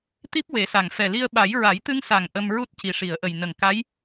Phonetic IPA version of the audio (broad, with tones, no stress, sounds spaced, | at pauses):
t̪ i˦˥ p̚ w e˨˩˦ s a˨˩ ŋ f ɛ˨˩ l i˧ ə̯ ɓ a˨˩˦ j ɹ a˨˩˦ j t̪ ɨ˧ ŋ s a˨˩ ŋ ʔ ə˧ m ɹ u˦˥ t̚ c i˨˩ ʂ i˨˩˨ ə̯ ʔ ə˨˩ j n ə˨˩ ŋ k a˧˥ j